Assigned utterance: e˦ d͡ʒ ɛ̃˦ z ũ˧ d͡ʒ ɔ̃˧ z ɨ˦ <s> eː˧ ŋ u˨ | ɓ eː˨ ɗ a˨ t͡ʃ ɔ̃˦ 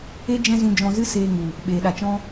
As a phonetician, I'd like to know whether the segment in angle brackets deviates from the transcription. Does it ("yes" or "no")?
no